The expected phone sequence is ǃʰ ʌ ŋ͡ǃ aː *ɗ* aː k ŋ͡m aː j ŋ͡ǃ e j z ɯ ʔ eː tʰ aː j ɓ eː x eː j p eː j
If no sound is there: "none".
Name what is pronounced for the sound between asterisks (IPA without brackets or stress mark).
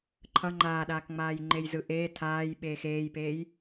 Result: ɗ